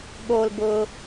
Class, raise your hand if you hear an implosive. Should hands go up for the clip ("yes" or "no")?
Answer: yes